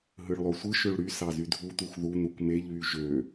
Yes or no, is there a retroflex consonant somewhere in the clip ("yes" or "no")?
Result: yes